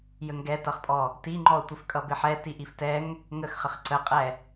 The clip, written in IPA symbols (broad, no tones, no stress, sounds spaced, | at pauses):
j ə ŋ ɡ ɛ t ʌ χ pʼ ɔ | t i ŋ͡ǃ ɔ ʊ̯ tʷ ɪ f kʼ ʌ b ɪ ħ ɛ t i ʔ i f t ɛ ŋ | ŋ ə x χ ə χ ǀ ə qʼ ɛ